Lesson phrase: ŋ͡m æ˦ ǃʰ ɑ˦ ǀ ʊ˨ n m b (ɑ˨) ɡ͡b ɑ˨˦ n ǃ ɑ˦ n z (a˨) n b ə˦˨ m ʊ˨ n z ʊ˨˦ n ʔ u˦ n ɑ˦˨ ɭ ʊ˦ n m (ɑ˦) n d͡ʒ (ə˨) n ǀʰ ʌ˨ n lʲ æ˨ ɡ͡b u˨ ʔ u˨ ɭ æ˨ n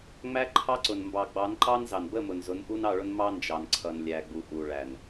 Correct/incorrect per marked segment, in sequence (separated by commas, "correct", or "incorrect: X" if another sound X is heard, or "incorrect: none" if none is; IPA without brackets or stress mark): correct, incorrect: ɑ˨, correct, incorrect: ɑ˨